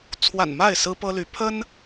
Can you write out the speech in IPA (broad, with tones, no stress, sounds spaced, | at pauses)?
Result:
t͡sʰ w a̰˨˩ n m a˥˨ ɪ̯ s ɹ̩˦ p ɤ˦ l y˨˦ pʰ ə˦ n